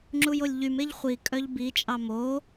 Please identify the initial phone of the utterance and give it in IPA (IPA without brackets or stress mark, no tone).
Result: ŋ͡ǁ